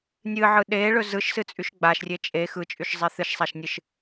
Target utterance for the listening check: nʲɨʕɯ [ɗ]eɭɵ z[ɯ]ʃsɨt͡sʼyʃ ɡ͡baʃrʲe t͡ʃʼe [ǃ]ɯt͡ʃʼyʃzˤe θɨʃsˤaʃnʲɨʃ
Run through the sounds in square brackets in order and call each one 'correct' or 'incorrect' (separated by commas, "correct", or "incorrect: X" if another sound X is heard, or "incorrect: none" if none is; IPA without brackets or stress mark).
correct, correct, incorrect: x